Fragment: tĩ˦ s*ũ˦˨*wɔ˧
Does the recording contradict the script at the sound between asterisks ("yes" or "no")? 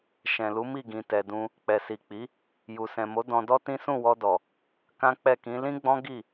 no